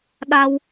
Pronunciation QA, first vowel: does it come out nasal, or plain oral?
oral